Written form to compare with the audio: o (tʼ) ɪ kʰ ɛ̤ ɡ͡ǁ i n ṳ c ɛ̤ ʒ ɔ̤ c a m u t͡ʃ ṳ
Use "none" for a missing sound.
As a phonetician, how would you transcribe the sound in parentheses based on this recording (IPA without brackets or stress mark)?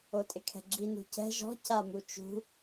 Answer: tʼ